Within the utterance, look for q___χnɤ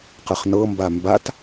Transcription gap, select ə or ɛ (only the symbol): ə